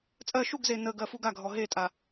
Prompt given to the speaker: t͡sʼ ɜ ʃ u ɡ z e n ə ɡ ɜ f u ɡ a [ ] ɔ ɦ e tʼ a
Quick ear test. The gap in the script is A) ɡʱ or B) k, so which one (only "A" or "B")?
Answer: A